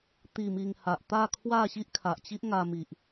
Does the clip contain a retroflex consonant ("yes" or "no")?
no